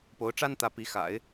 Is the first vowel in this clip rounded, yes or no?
yes